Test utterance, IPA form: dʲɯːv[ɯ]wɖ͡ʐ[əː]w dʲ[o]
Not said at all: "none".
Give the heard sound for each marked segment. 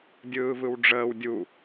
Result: ɯ, əː, u

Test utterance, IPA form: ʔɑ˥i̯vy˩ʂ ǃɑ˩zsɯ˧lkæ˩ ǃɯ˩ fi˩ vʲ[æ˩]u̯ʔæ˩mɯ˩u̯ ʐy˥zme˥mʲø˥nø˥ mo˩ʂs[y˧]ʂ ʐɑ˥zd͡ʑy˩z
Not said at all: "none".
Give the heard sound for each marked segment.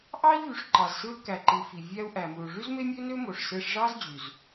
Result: æ˧, e˧

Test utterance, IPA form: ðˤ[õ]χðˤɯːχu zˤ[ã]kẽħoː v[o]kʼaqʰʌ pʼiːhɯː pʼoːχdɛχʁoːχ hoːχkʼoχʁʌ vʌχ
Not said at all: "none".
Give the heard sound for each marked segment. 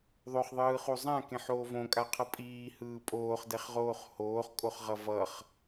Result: o, ã, õ

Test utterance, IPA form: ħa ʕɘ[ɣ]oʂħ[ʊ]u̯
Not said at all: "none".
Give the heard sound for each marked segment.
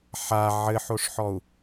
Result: ħ, ɔ

